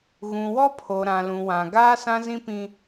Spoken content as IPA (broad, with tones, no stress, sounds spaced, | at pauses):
ɣ ũ˨ w ɔ˦ pʰ o˨ ɾ ã˨ l ũ˨ w ã˨ ɡ aː˦ s ã˦ z ĩ˦ p ĩ˦